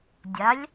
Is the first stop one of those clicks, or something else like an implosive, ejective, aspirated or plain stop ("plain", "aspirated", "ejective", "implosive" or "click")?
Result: plain